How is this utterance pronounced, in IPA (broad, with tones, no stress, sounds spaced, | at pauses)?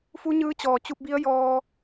f u˧˥ ɲ ɯː˧˥ t͡ɕ ɔː˩ t͡ɕ u˧ p̚ b i˧˥ ə̯ j ɔː˧